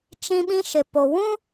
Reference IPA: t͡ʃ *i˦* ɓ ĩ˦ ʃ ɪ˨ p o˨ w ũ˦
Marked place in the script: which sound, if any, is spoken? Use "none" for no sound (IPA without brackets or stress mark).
ĩ˦